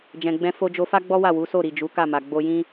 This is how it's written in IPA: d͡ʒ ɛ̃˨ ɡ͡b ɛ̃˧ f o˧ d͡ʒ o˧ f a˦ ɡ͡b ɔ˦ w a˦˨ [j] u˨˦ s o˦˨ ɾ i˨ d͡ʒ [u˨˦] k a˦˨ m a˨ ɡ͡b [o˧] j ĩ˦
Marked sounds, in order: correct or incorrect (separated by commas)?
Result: incorrect, correct, correct